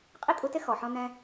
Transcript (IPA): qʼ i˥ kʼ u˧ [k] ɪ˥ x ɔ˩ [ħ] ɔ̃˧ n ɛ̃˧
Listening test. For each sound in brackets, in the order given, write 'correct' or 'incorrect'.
incorrect: t, correct

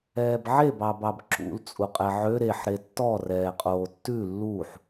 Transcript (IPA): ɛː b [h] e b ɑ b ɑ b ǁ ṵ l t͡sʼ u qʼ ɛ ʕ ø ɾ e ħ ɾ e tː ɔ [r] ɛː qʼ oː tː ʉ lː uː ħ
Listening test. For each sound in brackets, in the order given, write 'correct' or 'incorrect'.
incorrect: ʕ, correct

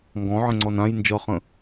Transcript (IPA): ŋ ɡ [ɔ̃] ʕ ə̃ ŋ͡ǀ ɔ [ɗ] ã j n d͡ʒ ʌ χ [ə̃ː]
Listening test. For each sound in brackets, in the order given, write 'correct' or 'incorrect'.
correct, incorrect: n, incorrect: ə̃

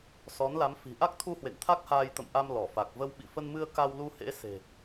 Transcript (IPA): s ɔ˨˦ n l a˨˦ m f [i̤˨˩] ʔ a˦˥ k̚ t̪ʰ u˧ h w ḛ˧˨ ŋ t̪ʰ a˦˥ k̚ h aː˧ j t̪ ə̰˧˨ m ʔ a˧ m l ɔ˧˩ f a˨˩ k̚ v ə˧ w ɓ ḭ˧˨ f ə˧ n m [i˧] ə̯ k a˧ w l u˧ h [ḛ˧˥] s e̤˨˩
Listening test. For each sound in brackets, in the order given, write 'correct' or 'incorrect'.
correct, incorrect: ɨ˧, correct

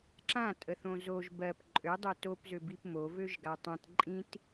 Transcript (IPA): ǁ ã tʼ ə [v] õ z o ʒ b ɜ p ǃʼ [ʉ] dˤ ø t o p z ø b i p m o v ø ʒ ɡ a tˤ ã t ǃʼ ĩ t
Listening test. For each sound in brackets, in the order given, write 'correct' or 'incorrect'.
incorrect: θ, incorrect: ø

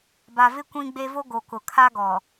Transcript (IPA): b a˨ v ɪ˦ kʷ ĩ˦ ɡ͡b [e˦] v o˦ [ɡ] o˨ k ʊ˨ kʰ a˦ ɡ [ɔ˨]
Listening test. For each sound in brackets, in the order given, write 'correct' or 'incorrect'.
correct, correct, correct

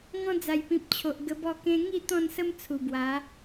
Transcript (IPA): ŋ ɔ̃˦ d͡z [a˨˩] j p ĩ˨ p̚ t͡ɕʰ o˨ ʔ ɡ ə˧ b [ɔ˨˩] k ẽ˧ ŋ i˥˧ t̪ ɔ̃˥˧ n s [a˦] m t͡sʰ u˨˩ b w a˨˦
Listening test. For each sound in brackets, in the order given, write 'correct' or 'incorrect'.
correct, incorrect: ɔ˥˧, incorrect: ə˦

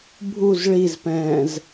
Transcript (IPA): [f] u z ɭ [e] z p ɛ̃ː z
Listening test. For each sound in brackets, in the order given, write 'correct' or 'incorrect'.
incorrect: bʱ, incorrect: i

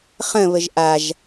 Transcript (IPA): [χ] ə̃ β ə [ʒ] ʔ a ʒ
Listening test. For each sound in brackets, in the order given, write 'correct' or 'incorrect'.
correct, correct

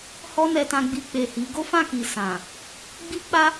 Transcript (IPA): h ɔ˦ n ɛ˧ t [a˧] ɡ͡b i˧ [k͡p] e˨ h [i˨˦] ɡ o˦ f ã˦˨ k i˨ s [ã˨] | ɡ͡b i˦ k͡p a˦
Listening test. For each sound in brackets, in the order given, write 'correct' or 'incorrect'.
incorrect: ã˧, correct, correct, correct

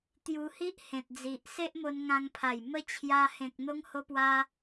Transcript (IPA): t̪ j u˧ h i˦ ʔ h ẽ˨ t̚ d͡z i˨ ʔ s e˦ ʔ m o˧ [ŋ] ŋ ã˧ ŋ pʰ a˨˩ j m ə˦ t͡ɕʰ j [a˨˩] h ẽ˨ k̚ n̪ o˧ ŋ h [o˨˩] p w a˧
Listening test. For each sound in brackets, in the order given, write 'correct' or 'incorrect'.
incorrect: n, incorrect: a˧, incorrect: o˧

